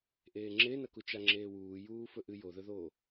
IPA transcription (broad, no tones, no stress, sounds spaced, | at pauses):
ʔ eː ŋ͡ǁ e n ɐ k u t͡ʃ a ŋ͡ǁ eː w uː j uː f ɵ ʔ ɨ j o ð ɵ ð oː